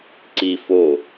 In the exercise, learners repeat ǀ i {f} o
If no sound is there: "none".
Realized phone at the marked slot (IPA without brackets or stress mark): f